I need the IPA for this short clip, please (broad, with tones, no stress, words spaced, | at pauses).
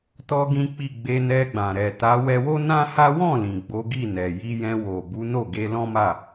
tɔ˦ɡĩ˦k͡pi˦˨ ɡ͡be˧nɛ˧ɡ͡bã˨ ɾɛ˨ta˨˦ wɛ˧wo˦nã˦ha˦ wɔ̃˦˨lĩ˨ ɡ͡bo˨˦ɡi˦˨nɛ˨ ji˧jɛ̃˧ wo˨bu˨˦ no˦˨ɡe˧ lɔ̃˦ma˦˨